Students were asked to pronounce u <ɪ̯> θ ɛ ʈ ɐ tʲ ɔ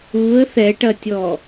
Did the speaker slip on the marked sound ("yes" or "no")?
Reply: yes